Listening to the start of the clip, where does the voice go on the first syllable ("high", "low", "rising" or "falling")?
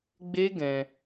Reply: high